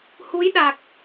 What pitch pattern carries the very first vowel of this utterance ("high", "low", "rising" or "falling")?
rising